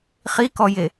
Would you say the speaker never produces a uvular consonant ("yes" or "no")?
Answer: no